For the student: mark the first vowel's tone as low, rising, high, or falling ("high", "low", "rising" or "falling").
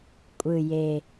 low